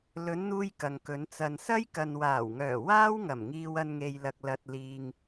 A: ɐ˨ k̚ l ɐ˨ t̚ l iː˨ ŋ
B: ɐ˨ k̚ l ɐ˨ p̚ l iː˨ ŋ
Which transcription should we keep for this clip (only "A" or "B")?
A